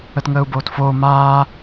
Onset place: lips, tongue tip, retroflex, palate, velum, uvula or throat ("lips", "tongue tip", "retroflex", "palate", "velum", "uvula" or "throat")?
tongue tip